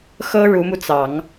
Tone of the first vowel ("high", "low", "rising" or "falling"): high